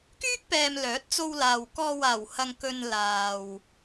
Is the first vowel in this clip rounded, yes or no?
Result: yes